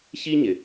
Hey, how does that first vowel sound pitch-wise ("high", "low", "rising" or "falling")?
high